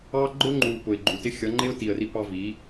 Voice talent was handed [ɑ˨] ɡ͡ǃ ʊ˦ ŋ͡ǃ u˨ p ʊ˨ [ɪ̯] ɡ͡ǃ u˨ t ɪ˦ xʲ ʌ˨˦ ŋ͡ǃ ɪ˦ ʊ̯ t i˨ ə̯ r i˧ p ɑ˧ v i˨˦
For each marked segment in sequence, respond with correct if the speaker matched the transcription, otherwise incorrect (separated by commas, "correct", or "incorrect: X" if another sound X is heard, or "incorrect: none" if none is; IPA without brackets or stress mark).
incorrect: ɑ˦, correct